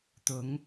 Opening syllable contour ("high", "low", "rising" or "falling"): rising